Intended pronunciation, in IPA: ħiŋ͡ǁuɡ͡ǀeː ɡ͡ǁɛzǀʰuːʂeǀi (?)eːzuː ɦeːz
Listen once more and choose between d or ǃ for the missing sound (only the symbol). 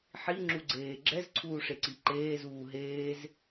ǃ